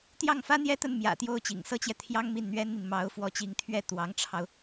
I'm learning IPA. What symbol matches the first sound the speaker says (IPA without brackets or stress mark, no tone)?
t̪